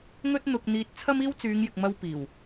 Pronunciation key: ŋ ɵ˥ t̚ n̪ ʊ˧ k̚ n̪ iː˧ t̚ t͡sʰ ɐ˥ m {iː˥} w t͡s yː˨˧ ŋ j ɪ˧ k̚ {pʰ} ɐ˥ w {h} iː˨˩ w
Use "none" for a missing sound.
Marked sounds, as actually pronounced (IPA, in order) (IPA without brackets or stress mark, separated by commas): iː˥, m, p